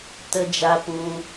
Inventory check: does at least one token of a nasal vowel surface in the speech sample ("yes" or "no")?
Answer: yes